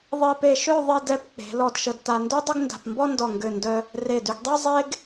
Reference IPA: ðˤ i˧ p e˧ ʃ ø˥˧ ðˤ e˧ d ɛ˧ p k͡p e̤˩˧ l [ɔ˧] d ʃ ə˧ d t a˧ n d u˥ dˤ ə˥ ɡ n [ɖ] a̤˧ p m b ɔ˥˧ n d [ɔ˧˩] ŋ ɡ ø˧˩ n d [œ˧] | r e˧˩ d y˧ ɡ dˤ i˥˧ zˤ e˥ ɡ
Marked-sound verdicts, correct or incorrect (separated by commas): correct, incorrect, correct, correct